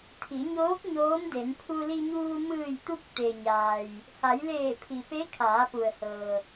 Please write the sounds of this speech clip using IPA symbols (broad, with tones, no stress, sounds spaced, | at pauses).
t̪ʰ i˩˧ ɲ oː˧˥ k̚ ɲ oː˧˥ m d e˩˧ n pʰ u˧ l i˧ ɲ uː˧ m ɯː˧˩ j t̪ u˧ k̚ t̪ e˩ ɲ aː˩ j | h a˩˧ j l eː˧˩ pʰ i˩ p e˧˥ kʰ aː˩˧ p u˩ ə̯ h ɤː˩